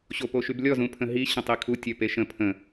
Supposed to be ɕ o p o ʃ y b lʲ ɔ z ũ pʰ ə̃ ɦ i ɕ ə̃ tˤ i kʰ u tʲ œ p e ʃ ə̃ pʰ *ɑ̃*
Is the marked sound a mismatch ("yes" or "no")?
yes